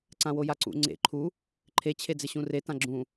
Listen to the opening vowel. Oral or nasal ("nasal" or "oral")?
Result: nasal